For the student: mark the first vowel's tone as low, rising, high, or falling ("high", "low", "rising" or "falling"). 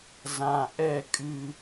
low